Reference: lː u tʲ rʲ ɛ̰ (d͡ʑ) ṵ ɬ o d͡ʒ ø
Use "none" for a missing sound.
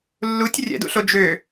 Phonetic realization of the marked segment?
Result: d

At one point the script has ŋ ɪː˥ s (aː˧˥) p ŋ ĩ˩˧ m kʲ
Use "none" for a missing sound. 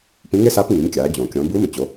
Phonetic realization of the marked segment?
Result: aː˧˥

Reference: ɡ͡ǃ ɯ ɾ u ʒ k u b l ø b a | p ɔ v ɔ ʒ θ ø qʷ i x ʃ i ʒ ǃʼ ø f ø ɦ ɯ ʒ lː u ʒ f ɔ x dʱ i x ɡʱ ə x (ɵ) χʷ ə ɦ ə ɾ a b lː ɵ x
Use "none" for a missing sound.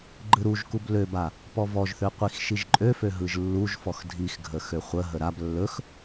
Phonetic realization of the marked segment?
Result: ø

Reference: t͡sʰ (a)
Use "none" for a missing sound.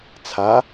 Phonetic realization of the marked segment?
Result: a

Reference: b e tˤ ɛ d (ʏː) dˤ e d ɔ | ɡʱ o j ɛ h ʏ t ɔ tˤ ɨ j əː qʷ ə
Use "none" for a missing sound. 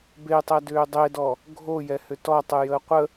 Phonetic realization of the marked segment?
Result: ʏː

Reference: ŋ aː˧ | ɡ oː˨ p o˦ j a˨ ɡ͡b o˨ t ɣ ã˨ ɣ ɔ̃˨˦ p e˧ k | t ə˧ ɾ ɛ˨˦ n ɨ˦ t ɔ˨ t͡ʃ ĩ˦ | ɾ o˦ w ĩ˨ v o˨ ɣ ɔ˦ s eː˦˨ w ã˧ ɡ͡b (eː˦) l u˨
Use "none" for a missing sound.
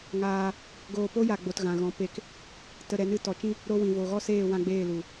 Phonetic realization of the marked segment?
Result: eː˦˨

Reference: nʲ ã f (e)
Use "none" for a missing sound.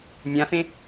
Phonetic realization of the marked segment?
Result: ẽ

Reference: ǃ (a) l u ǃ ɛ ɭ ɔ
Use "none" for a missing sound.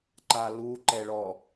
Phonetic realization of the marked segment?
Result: a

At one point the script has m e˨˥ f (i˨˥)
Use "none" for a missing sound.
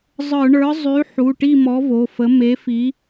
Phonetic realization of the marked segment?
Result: i˨˥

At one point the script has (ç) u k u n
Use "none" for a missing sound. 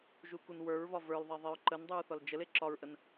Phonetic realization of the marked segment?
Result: ʒ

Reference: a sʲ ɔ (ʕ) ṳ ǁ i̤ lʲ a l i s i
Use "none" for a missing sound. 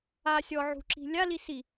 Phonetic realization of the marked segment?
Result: ʕ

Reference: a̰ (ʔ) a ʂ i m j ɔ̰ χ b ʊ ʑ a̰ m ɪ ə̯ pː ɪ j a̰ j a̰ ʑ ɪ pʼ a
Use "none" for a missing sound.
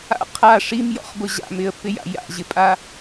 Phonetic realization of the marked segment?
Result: qʰ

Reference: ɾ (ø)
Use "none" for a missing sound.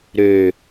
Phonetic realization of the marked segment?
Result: ø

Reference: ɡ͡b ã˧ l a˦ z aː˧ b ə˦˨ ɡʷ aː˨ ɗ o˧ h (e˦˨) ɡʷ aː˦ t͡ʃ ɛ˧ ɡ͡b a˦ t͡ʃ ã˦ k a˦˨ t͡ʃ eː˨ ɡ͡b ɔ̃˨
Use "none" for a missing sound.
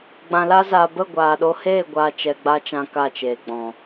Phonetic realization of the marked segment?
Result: eː˦˨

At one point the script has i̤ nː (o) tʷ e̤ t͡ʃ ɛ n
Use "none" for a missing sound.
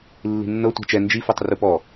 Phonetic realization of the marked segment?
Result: ɤ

